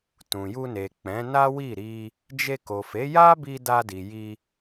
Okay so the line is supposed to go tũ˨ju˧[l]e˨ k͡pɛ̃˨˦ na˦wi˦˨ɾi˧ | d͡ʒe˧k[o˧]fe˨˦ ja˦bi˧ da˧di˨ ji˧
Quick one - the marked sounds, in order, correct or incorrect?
incorrect, incorrect

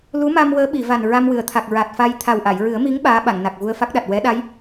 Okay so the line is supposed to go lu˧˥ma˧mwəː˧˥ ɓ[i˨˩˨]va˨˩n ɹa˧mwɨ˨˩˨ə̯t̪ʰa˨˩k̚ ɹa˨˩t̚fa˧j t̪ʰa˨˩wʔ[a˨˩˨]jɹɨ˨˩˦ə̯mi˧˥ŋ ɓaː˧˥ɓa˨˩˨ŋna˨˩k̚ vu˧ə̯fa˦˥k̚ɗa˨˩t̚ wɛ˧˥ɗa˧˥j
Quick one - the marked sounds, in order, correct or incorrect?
correct, correct

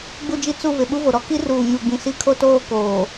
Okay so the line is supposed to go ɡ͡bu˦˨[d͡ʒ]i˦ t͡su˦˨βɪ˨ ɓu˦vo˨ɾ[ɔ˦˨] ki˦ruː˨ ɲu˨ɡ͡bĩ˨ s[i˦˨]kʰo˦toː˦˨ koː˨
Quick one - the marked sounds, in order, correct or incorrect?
correct, incorrect, correct

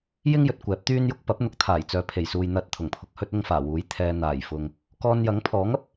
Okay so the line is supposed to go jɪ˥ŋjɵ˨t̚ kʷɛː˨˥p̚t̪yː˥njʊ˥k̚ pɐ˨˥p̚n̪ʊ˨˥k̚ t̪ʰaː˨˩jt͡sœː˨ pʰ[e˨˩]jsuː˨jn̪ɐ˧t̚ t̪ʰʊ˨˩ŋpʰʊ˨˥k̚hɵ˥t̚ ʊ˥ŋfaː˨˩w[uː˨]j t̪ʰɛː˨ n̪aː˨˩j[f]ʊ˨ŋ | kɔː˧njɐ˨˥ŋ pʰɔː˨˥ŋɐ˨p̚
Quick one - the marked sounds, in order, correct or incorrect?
correct, incorrect, correct

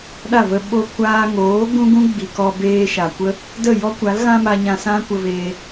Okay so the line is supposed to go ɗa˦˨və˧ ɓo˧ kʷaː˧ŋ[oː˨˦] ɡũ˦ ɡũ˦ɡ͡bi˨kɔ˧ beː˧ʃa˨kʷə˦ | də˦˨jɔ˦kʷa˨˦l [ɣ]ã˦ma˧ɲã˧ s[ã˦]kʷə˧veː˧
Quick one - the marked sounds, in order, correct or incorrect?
correct, correct, correct

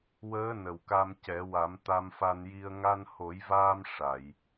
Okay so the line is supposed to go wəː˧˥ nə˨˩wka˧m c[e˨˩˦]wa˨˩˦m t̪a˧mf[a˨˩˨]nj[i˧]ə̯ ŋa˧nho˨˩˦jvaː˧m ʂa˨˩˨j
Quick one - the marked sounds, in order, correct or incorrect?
incorrect, incorrect, correct

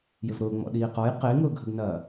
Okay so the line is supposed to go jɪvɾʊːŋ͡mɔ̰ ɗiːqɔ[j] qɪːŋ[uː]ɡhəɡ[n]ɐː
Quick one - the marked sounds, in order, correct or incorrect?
correct, incorrect, correct

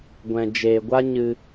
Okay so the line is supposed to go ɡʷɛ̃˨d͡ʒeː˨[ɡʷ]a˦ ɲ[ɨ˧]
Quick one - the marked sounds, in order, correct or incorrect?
correct, correct

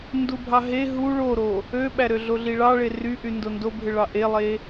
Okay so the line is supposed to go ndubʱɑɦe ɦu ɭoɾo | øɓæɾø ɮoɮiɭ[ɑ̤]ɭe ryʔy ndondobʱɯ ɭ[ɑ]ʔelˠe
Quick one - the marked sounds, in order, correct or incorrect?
incorrect, correct

